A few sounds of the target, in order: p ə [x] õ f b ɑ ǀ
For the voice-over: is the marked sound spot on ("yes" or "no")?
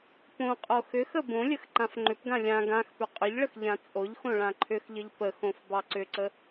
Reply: yes